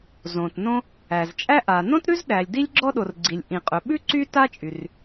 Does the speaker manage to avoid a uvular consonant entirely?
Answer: no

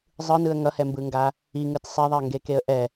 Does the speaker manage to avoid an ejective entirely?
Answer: yes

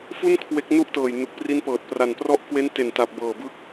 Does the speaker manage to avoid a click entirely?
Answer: yes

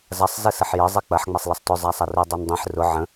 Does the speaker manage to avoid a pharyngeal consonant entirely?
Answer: no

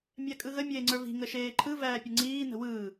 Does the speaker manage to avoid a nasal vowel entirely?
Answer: yes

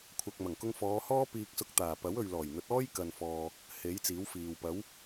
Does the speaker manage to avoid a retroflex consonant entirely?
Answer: yes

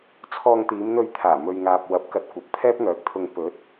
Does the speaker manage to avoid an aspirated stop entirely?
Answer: no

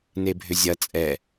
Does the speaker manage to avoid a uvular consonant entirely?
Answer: yes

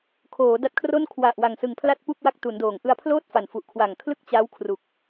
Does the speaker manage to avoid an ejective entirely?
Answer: yes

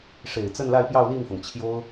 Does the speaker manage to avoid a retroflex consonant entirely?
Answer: no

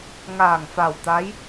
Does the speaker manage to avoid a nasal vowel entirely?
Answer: yes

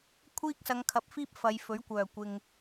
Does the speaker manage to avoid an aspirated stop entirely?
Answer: no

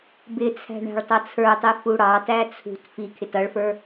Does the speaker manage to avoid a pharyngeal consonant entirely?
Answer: yes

